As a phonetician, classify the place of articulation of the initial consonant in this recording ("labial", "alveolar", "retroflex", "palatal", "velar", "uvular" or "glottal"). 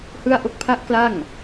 glottal